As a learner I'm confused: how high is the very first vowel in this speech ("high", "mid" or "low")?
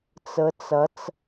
mid